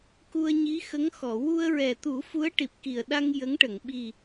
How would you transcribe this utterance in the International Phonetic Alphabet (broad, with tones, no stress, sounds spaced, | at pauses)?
k u˧ ə̯ ɲ i˧˥ x ə˧˥ ŋ x ɔ˨˩˨ w u˧ ə̯ ɹ ɛ˨˩ t̪ u˨˩˦ f u˧˥ ə̯ ʈ i˨˩ p̚ k i˨˩ ə̯ ɗ a˧ ŋ j ə˧˥ ŋ ʈ ə˨˩˨ ŋ ɓ i˨˩